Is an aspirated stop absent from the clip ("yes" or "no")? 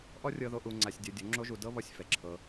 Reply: no